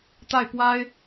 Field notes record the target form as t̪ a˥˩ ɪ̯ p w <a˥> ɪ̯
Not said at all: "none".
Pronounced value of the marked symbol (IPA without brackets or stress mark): a˥